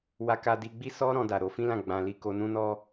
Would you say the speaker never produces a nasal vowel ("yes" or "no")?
no